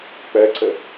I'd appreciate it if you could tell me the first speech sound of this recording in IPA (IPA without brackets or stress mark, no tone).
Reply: k͡p